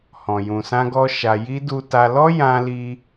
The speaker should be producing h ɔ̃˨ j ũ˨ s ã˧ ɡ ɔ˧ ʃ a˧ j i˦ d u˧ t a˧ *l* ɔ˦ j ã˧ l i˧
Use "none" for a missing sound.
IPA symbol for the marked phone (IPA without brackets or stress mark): l